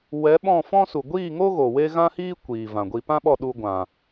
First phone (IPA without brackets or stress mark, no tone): w